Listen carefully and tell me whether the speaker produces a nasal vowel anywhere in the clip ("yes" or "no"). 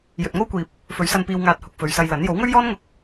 no